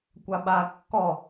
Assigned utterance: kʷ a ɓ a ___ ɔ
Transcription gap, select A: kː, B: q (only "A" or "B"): A